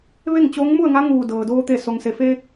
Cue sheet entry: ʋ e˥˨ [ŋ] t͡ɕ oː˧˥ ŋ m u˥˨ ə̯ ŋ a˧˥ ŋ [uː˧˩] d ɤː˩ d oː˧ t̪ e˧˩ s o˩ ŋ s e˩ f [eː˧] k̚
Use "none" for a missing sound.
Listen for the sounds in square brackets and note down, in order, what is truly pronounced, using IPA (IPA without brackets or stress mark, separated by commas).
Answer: ŋ, uː˧˩, eː˧